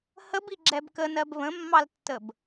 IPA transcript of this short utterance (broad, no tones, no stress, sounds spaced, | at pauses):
h ə b i ɡ͡ǁ ɛ b k ə n ɜ b β ə̃ mː ɑ l tː ə b